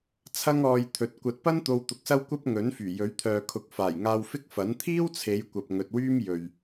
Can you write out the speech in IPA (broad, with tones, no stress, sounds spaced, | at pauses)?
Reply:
t͡sʰ ɐ˥ ŋ ɔː˧ j t̪ʰ ɵ˨ t̚ kʷ ɐ˨ t̚ p ɐ˥ n t̪ o˧ w t̪ ʊ˨˥ k̚ s ɐ˥ w kʷ ɐ˥ p̚ ŋ ɵ˨˥ n f yː˨˩ j ɵ˨˥ ɥ t̪ʰ œː˨ kʰ ʊ˨˥ k̚ f aː˨˩ j ŋ aː˧ w f ɪ˥ k̚ f ɐ˨˥ n t̪ʰ iː˥ w t͡sʰ e˨˧ j kʷ ɐ˨ p̚ ŋ ɵ˨ t̚ w yː˥ m j ɵ˨ ɥ